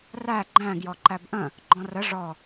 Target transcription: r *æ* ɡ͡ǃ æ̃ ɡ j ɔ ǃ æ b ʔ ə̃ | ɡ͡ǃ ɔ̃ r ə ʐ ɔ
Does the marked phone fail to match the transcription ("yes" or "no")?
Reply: no